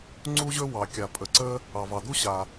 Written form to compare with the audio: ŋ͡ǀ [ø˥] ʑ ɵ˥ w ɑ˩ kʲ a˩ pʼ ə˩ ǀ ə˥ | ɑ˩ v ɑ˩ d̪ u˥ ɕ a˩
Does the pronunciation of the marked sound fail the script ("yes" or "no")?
yes